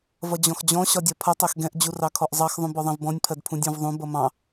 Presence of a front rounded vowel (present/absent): absent